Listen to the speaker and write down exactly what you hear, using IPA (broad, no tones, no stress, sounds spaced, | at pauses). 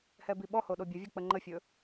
h ɛ b i ɓ ɔ h o ɗ o bʲ ə vʲ o k͡p ə ŋ͡ǃ ə fʲ ɵ